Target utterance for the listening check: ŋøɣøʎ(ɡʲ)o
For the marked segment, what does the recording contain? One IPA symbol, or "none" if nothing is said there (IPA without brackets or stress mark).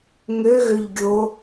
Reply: ɡʲ